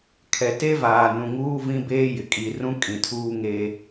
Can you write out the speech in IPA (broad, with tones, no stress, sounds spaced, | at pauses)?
kʰ ɛ˨ t e˦ v aː˨ n ũ˨ ŋ uː˦ v ĩ˦ b eː˦ j ɪ˨ kʼ i˨ r ũ˦ kʼ ĩ˨ tʰ uː˦ ŋ eː˦